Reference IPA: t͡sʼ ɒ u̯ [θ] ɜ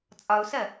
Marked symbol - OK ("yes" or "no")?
no